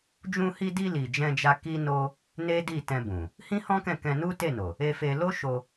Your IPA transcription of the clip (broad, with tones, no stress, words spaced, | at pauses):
d͡ʒũ˧hi˧di˧ li˨d͡ʒɛ̃˧d͡ʒa˧ ki˦no˦ | ne˦di˦˨tɛ̃˧ bũ˨ | hĩ˦hɔ̃˦kɛ̃˦˨ kɛ̃˧nu˦te˦˨no˨ | e˧fe˧ lo˦ʃo˧